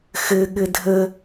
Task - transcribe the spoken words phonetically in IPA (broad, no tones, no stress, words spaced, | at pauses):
xɘɠɘ dʱə